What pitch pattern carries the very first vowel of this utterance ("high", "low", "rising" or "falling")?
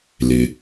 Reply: low